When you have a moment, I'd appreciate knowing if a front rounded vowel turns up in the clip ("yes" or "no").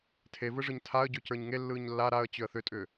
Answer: yes